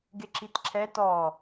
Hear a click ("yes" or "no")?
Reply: yes